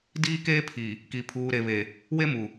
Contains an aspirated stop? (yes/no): yes